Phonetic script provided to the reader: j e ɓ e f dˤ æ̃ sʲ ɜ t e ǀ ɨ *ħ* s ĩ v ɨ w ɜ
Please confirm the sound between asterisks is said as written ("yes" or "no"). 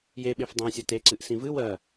no